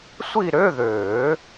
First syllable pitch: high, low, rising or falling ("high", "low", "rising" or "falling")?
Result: falling